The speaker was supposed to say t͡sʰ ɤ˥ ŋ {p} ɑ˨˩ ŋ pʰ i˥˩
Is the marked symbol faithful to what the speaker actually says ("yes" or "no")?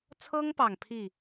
yes